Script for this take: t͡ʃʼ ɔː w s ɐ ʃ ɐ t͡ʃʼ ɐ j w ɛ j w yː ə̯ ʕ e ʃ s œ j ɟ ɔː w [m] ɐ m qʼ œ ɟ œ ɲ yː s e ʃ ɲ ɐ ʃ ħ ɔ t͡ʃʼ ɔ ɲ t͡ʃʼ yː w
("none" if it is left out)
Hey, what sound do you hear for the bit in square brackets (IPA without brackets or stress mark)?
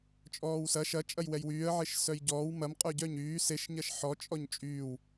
m